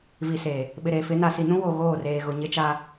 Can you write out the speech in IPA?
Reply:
vi˨se˨ | ɓɪ˨ɾeː˨ fɪ˨˦ na˨si˨nũ˦ wo˨ɣoː˦˨reː˨ ɣʊ˨ɲɪ˦t͡ʃa˦

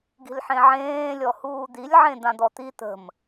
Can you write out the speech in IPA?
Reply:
ɡi̤lħẽʕẽː lʲɔhuːd̪ilʲ ʕẽd̪ãd̪ɔt̪i t̪ə̤m

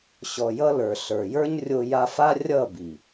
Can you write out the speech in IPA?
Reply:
ɕɔ˨jʌ˧lə˞˨ ɬə˞˨jə˞˦ɲrʲo˧ ja˧fa˦ rʲʌ˦˨bi˨

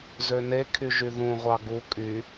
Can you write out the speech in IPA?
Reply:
zønekʰyʒy ðũʁʷɑ ɡu kʼy

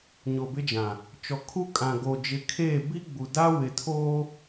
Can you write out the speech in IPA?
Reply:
ɲo˨bɪ˦d͡ʒã˨ | t͡ʃɔ˨ kʰu˦ kʼã˨ɡoː˨ d͡ʒɪ˨˦kʰeː˦˨ bi˦ɡ͡bu˨da˦ wɪ˨tʰoː˦

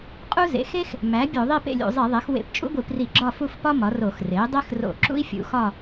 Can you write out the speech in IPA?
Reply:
qʼu˥zḛ˩˥ xe˥x | mæ˩˥ bʲo˧˩˧ðˤi˥˨ pḛ˥˨lʲṵ˧˩˧zˤi˧˩˧ðˤe˩˥x wḛ˧˩˧pt͡ʃʼṵ˥ɡʷi˧˩˧pri˧˩˧ ɡ͡ǁɒ˥˨fu˥˨fpɒ˥ mɒ˩˥ro˧˩˧x re˩˥i̯dˤe˥xro̰˧˩˧ǁṵ˥i̯ fʲṵ˩˥xɒ˥˨

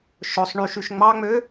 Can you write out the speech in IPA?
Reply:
ʃɵsˤ ɳyʃyʃ ŋ͡mɑŋ͡mø

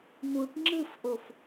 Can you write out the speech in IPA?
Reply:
nuʈ ŋ͡ǁɯfʔof

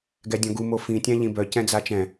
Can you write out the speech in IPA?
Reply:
ɡɛdʲɔ̃ɡu mofĩ tʲãʎĩbœ cɛ̃d͡zat͡ʃɛ̃

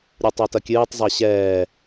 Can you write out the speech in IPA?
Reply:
ɾʲutˤatɐkʲɨːtˤ zˤaɕɛː

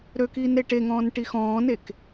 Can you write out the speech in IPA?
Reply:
ɾøkiːn ɾeʈeŋɔ̃ːn ʈixɔ̃ːnek

